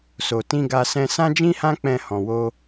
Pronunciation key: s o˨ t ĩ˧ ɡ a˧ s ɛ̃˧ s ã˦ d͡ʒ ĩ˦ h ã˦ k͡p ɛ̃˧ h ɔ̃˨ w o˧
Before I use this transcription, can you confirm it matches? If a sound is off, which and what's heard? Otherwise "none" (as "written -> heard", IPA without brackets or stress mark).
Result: none